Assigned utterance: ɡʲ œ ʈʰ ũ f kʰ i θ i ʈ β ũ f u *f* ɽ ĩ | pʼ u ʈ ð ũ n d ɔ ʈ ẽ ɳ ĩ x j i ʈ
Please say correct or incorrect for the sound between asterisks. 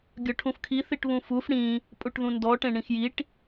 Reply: correct